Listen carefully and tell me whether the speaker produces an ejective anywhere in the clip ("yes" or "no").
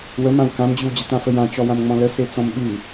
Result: no